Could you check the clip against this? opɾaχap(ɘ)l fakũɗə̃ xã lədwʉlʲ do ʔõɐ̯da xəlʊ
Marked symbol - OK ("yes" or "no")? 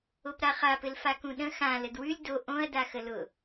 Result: yes